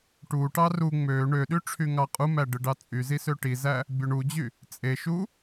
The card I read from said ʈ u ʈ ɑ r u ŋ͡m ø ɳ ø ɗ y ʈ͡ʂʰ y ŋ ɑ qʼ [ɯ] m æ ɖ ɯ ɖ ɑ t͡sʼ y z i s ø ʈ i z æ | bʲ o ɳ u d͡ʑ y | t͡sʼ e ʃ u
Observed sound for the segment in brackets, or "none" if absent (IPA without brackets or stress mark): u